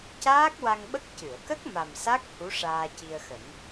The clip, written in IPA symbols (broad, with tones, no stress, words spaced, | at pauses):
caː˦˥k̚wa˧ŋɓə˦˥k̚ cɨ˨˩˨ə̯kə˦˥k̚ ma˨˩msa˦˥k̚ hu˧˥ ʂaː˧ci˧ə̯xə˨˩˦ŋ